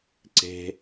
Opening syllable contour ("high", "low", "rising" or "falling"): high